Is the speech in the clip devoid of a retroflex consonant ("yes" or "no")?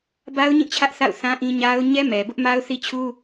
yes